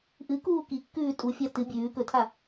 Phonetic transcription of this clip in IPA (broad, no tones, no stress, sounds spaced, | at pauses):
ʔ ɨ k uː k i kː ʉː tʼ u fʲ a t ɨ bʲ ʉː k ɵ tʰ a